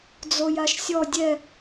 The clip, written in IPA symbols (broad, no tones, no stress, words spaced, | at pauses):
d͡zojaʃsʲɔ dʲɛ